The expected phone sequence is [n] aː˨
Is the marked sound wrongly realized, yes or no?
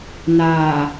no